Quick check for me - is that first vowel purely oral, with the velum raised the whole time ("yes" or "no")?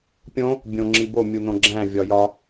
no